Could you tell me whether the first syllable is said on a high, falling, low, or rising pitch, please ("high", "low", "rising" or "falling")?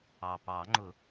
low